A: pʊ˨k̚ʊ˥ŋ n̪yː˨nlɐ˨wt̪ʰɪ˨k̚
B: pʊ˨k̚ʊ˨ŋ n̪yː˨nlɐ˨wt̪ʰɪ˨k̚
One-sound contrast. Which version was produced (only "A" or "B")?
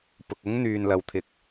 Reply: A